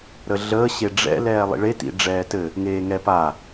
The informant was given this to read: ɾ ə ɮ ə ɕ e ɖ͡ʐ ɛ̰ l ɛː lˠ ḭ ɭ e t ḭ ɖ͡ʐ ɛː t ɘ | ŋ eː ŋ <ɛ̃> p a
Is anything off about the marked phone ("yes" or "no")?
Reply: yes